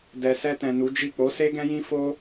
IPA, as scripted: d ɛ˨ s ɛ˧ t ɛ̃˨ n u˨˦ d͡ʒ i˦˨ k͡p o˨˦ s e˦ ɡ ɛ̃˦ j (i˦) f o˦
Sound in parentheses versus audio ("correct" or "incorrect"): incorrect